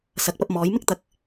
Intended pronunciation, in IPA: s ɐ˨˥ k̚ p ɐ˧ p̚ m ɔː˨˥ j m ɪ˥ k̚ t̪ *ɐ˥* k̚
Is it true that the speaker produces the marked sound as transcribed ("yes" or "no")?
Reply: no